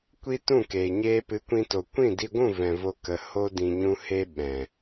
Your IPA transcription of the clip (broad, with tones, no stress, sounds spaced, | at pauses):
kʷ i˦ t ũ˦˨ k eː˨ ɲ eː˧ p ɨ˨˦ kʷ ĩ˧ t o˨ kʷ ĩ˦˨ d i˧ ɡʷ ũ˦˨ v ɛ̃˨ v o˧ k ə˨ h o˦ d ĩ˧ ɲ ũ˦ h eː˦ ɓ ɛ̃˨